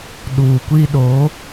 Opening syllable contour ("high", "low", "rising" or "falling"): low